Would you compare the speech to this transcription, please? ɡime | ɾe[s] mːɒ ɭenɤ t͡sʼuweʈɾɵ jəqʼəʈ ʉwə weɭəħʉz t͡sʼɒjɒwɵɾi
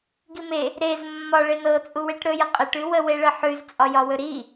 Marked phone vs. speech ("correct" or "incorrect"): incorrect